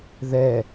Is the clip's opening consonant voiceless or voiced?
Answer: voiced